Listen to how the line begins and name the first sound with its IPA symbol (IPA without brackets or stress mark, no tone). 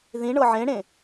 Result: ð